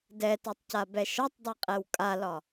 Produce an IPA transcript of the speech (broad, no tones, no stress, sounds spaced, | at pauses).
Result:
d ɛ t æ tˤ c a b ɛ ʃ ɒ tˤ dˤ ɛ qʼ ɛ w kʼ a l ɒ